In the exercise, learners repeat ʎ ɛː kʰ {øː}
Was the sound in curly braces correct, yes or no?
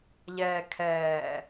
no